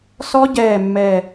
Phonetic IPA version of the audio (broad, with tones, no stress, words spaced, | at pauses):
sɔ˦˥ ɟɛː˧˩ mːɛː˧˩